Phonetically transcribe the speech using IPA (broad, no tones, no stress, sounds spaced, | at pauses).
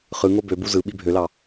χ ɯ ŋ o b ø b u z ɯ ɓ i bʱ ø l ɑ